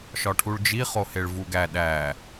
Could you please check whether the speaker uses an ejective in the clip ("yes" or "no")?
no